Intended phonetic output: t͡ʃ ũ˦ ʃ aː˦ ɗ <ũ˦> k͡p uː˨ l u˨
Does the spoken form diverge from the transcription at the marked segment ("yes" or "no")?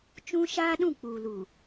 yes